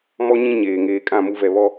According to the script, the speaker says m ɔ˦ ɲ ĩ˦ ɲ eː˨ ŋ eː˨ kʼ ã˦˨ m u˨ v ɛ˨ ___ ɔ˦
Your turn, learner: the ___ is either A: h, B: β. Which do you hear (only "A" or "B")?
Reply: B